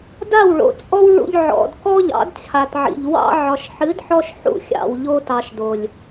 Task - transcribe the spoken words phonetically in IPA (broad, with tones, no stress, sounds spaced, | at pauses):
d a˦˨ w ɭ o̰˨ t͡sʼ ɔ˦ w ɭ ṵ˧ ʎ ʕ ɔ̰˨ d k ɔ˦ ʎ ɑ̰˨˦ d t͡ɕʰ a˨ t ʕ ḭ˨ ʎ w ɑ̰˧ ʕ ɒ˨ ʃ ħ ɨ˨˦ d ħ ɔ˧ ʃ ħ ṵ˧ xʲ ɑ̰˨ w ʎ o˧ t ɑ˨ ʃ d o˨ lʲ